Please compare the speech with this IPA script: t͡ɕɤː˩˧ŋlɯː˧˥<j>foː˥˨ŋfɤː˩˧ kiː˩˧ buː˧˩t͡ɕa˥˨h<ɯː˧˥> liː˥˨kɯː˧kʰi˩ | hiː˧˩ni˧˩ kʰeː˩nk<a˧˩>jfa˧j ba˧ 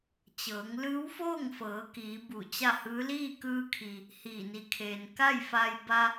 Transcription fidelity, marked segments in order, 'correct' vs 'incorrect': incorrect: w, correct, incorrect: a˥˨

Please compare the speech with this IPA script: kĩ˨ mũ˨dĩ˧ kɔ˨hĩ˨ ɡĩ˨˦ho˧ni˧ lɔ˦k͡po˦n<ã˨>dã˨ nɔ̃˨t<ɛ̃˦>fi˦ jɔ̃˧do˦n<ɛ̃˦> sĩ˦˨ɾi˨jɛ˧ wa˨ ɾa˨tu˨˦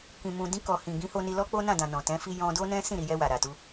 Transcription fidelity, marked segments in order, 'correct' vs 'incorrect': incorrect: ã˦˨, incorrect: ɛ̃˨˦, correct

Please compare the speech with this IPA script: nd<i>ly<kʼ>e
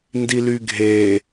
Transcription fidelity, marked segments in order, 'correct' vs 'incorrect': correct, incorrect: ɡʱ

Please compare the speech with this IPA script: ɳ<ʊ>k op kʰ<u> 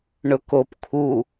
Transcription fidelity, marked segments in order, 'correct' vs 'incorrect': correct, correct

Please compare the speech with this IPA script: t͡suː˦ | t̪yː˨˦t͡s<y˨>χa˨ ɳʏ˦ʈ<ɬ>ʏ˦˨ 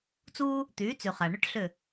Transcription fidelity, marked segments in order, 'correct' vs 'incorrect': correct, correct

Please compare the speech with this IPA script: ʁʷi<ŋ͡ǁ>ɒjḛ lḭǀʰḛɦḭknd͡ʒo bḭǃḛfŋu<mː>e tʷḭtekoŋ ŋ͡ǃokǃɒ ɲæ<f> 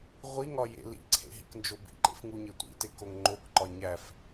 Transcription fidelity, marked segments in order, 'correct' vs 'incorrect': incorrect: ŋ, incorrect: ɲ, correct

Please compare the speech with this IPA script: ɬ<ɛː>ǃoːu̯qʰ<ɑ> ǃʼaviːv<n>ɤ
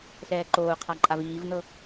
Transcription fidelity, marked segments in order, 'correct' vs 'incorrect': correct, incorrect: a, correct

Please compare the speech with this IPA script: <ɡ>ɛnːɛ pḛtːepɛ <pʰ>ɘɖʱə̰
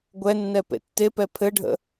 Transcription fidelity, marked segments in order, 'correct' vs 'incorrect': incorrect: ɡʷ, correct

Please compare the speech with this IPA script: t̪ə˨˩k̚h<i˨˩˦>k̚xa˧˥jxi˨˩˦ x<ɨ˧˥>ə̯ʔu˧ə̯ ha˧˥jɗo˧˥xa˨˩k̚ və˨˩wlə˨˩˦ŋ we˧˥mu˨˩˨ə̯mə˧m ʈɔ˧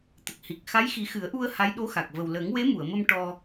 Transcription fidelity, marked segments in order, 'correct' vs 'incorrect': incorrect: i˨˩, incorrect: ɨ˨˩˦

